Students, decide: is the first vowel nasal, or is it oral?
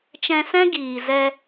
nasal